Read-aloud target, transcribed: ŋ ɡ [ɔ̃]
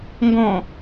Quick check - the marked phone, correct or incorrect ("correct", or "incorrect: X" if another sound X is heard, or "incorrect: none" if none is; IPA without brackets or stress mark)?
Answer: correct